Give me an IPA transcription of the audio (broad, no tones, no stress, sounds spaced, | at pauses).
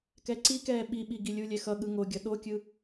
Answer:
k ɛ ǀ i k ɛː ɓ i ɓ i ɡ i lʲ u lʲ ɛ x ʌ ɠ ɯ ŋ o ɡʲ ʌ ɗ o kʲ ɯ